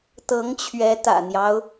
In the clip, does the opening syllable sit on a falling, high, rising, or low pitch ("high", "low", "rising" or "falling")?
rising